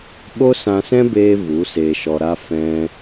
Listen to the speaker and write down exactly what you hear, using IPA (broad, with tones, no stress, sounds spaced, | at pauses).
ɓ o˦ s ã˧ s ɛ̃˦ b eː˧ v u˨˦ s eː˧ ʃ ɔ˧ ɾ a˦ f ɛ̃˧